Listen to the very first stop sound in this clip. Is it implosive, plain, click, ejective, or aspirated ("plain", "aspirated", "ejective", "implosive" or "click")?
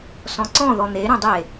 click